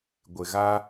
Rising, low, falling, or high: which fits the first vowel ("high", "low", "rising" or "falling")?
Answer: low